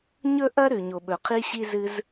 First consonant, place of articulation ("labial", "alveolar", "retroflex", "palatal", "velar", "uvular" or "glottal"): palatal